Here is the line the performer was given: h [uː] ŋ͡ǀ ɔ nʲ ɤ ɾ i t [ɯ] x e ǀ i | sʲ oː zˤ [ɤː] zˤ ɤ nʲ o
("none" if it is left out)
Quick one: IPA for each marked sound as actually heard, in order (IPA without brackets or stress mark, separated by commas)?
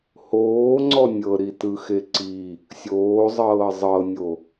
oː, ɯ, ɤː